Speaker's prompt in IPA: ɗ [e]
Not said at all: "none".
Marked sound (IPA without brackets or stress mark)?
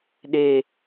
e